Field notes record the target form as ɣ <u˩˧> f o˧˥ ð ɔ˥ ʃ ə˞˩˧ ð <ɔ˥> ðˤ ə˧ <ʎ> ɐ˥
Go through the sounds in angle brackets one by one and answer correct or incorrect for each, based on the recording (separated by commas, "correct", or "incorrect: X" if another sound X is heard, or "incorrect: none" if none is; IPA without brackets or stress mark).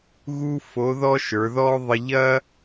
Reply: incorrect: u˥, correct, correct